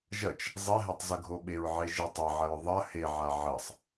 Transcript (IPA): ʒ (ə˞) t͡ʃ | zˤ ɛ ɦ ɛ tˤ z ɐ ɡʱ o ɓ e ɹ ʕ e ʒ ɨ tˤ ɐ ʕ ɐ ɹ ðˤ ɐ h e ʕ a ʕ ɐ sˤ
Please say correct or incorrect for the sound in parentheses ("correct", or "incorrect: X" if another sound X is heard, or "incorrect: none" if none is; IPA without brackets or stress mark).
incorrect: ɐ